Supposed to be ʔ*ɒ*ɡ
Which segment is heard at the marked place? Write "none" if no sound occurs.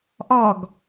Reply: ɒ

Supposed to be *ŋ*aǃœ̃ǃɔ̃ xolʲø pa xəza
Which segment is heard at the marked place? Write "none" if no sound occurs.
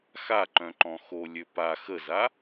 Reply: x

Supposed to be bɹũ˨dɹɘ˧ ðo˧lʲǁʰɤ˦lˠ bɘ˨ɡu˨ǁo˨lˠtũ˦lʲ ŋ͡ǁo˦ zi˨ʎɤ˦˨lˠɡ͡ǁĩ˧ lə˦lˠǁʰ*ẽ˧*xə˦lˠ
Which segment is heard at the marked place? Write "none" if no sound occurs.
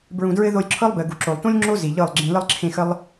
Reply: ẽ˧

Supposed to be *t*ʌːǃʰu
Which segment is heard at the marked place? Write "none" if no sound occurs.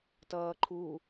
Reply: t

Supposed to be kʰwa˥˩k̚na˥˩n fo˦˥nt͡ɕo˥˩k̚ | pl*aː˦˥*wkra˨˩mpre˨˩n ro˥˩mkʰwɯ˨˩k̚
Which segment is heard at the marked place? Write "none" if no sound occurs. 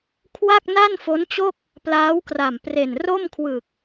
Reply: aː˦˥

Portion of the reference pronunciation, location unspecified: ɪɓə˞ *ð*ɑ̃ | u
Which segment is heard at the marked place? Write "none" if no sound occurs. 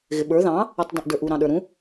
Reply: ð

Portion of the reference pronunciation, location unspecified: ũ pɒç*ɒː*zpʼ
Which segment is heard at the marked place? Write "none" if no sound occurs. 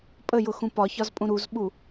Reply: ɒ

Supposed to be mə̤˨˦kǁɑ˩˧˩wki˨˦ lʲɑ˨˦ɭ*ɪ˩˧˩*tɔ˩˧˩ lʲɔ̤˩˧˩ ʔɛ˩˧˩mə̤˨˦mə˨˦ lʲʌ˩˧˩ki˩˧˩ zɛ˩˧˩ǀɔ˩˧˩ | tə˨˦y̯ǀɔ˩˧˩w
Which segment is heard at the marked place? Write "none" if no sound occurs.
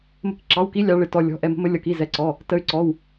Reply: ɪ˩˧˩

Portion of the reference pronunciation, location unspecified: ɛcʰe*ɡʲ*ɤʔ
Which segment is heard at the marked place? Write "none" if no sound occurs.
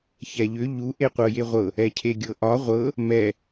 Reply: ɡʲ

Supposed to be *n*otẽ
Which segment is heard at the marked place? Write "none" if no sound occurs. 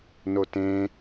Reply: n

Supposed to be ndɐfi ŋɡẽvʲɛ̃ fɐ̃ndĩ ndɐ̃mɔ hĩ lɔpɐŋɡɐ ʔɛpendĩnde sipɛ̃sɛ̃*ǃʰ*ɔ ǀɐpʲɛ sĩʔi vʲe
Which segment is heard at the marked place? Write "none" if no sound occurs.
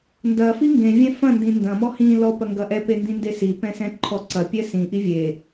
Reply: ǃʰ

